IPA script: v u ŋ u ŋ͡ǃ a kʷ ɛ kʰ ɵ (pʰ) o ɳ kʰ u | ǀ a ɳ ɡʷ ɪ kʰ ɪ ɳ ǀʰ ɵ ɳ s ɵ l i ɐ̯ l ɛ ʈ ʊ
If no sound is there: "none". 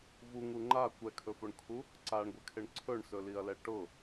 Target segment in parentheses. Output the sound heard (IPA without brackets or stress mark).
f